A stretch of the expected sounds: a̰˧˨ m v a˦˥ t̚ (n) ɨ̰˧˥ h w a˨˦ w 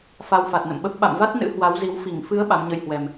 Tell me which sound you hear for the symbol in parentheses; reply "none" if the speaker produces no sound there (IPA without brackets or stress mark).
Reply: n